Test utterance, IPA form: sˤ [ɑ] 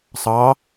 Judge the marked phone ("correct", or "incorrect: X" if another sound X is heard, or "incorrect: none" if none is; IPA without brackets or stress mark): correct